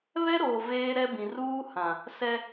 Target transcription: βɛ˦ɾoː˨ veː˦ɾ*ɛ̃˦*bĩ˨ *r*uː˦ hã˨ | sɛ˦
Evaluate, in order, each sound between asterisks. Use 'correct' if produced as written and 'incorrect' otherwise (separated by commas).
incorrect, correct